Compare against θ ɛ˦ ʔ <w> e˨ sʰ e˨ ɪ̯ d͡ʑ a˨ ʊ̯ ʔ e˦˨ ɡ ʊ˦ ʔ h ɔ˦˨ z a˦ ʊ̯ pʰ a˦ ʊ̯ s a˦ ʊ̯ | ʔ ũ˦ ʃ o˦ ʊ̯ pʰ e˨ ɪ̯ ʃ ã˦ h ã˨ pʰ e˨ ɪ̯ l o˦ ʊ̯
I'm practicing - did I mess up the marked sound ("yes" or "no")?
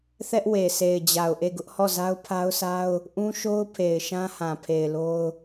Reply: no